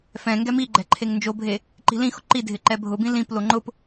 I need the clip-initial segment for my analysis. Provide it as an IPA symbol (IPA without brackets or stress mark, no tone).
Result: f